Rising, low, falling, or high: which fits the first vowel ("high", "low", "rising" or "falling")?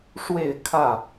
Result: falling